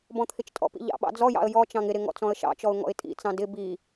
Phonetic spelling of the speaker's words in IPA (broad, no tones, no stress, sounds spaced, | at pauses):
b ɔ̃ t̪ʰ ɪ t͡ʃ tʼ ɔ̰ p ḭ ʎ ɑ̰ ɓ ɑ̰ d͡z ɔ j ɑ̰ ə̯ j ɔ t͡ʃ ɑ̃ ŋ ɪ ɾ ɪ ŋ ɔ̰ t͡s ɔ̃ ə̯ ʃ ɑ̰ t͡ʃ ɔ ʊ̯ ŋ ɔ̰ ɪ̯ tʼ ḭ t͡s ɑ̃ d ɪ b i